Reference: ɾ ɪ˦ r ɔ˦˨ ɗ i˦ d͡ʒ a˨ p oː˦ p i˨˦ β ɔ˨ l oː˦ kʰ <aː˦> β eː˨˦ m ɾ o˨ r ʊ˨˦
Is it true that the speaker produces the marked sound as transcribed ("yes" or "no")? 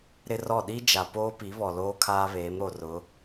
yes